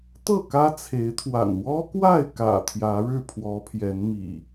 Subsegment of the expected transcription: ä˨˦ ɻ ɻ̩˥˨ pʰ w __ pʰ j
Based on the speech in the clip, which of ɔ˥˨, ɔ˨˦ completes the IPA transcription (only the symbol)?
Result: ɔ˨˦